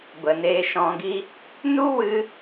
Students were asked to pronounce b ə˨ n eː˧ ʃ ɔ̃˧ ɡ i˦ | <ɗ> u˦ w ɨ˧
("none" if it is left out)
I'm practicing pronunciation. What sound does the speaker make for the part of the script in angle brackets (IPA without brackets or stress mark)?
n